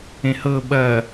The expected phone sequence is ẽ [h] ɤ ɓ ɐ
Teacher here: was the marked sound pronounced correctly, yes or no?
yes